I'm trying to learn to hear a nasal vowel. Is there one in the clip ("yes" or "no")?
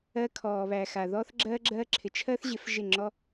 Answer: no